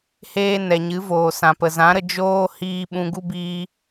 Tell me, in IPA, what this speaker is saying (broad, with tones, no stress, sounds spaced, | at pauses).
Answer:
h eː˧ n ɛ˨ ɲ ɨ˨˦ v oː˨ s ã˨ p ə˨ z ã˨˦ ɾ ə˧ d͡ʒ oː˦ h iː˧ ɓ ũ˧ ɡ u˦ b iː˧